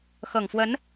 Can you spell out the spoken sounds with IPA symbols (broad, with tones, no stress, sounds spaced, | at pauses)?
x ɤ˨˩ ŋ f w ə˧˥ n